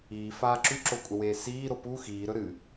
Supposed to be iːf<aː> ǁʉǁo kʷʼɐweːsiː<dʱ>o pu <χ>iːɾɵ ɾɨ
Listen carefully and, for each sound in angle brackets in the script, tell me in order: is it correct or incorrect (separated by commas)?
correct, incorrect, incorrect